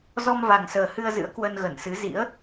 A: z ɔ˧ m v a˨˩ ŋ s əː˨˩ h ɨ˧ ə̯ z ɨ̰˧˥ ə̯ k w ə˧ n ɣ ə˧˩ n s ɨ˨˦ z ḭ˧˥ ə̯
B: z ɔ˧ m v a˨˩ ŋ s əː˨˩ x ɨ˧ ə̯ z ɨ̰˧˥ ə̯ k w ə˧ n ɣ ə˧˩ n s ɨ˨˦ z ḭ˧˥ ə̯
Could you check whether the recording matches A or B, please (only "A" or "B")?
A